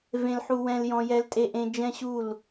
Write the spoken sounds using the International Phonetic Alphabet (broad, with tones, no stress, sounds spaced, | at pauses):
v ẽ˨ l ħ u˨ w ɛ̃˨ l j ɔ̃˨ j ɛ˨ l tʼ e˨ ʔ ẽ˨ d͡ʒ ɛ̃˦ ɕ u˦˨ l